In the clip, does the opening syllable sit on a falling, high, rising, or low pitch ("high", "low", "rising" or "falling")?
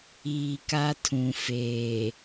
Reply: low